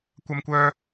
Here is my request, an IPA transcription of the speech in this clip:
kʷɐ˥mkʷœː˥

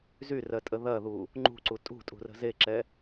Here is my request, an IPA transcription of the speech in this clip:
zyrɜ tʼəðɐðu | ŋ͡ǃṳǀu tʼṳtʼṳ rə̤zeǁɛ

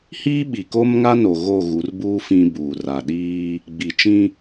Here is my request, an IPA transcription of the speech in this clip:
hiː˦ɓi˨ko˦m ŋa˦ no˨ɣo˦˨ ɣu˨˦rbuː˦ fĩ˦buː˨ ra˨ɗiː˦ | ɡ͡bi˨t͡ʃĩ˦

